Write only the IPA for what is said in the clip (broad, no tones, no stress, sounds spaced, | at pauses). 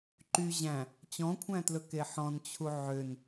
ǃ y ʑ æ̃ | t͡ɕ ɔ̃ kʷʰ æ̃ t l ɵ k e ħ ɔ̃ n t͡ɕʰ u ʕ ø n